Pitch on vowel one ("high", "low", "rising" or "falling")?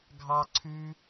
high